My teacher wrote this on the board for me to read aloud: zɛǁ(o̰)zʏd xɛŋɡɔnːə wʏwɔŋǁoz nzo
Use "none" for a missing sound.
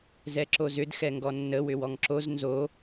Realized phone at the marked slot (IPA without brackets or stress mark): o